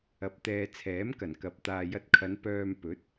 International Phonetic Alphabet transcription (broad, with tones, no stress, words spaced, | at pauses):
ɐ˧p̚t̪ɛː˧ t͡sʰɛː˨˥mkɐ˨˩n kɐ˧p̚ t̪aː˨jɐ˧t̚kʰɐ˨˧n pœː˧m pɵ˨˥t̚